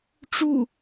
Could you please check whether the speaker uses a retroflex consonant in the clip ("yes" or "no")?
yes